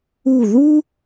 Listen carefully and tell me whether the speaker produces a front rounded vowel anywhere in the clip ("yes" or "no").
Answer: no